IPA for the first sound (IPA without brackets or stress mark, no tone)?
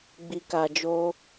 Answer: ɡ͡b